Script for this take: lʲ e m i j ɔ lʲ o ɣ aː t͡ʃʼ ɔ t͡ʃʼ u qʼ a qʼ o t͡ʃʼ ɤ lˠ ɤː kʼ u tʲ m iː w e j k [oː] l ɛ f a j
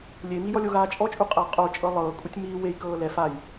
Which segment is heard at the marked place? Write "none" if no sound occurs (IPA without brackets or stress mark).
ɤː